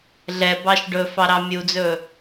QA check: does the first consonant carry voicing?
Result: yes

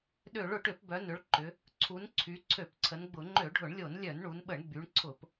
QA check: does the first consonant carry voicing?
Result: yes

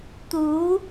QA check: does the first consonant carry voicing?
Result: no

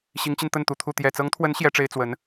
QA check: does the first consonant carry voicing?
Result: no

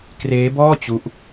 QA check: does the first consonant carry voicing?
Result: no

